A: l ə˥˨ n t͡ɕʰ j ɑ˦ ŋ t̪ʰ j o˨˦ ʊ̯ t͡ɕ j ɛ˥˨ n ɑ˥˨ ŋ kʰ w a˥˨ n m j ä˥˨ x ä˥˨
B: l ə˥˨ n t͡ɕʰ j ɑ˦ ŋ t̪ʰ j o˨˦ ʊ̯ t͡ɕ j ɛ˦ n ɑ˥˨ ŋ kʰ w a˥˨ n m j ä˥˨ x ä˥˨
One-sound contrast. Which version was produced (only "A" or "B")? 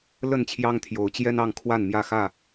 B